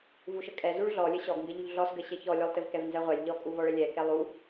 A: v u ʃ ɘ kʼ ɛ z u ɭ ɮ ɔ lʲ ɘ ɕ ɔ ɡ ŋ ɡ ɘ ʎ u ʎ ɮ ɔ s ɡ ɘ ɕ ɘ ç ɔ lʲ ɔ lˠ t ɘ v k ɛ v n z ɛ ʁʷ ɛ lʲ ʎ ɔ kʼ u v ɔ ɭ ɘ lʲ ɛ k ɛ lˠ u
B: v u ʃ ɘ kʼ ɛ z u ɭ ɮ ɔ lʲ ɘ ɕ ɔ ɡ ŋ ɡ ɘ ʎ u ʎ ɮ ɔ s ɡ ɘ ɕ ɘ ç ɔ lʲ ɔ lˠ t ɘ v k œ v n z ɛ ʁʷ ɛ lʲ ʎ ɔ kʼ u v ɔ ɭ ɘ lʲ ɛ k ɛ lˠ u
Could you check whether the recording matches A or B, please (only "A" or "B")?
A